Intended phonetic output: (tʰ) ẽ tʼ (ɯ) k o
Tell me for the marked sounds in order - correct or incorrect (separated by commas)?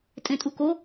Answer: incorrect, incorrect